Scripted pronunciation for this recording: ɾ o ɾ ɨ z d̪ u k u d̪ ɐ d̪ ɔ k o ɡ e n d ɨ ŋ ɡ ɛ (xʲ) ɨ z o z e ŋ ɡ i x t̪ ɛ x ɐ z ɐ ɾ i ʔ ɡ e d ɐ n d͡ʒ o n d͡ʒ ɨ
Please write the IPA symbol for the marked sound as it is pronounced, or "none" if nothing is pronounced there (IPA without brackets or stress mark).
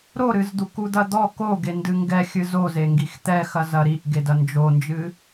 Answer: xʲ